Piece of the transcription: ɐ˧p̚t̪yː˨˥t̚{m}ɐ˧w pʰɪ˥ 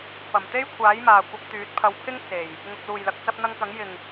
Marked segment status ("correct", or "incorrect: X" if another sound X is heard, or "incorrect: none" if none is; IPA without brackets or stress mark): incorrect: pʰ